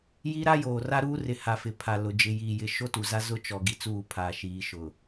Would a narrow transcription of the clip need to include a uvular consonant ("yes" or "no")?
no